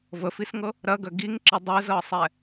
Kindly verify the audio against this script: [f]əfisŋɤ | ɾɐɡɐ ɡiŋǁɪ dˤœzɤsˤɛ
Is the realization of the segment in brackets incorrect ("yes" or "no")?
yes